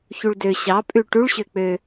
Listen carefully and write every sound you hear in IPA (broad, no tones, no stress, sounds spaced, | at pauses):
ç u ɭ d ø ɕ ɑ pʼ ʉ ʈ u ɭ ɕ ø k͡p ø